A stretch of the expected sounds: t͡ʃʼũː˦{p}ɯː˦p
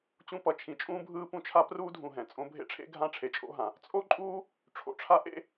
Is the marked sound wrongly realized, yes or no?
yes